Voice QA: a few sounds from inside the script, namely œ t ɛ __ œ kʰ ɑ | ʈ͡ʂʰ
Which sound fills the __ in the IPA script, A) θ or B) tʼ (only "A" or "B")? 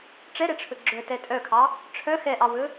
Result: B